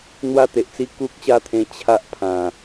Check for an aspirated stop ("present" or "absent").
present